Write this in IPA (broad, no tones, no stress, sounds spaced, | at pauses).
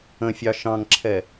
ə̃ fʲ ɑ ʃ ɑ̃ ŋ ǁʰ ɛ